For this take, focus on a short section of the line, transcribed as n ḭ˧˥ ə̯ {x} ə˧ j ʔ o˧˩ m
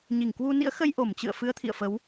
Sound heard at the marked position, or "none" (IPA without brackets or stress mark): x